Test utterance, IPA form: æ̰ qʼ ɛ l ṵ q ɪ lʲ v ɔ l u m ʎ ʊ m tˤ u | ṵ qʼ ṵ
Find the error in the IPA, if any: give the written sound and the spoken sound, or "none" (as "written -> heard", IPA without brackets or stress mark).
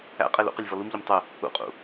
none